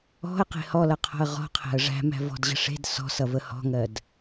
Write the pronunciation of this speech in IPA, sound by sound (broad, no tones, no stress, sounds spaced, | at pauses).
ɔ̤ ə̯ q e̤ h ɔ l ʌ qʰ ɔ̤ ə̯ ʁ ɔ̤ qʰ æ̤ ə̯ ʐ æ̤ m æ̤ v ɔ̤ d ʑ ə̤ ʂ e̤ d s ɔ̤ s ʌ v ə h ɔ̤ ŋ ɜ d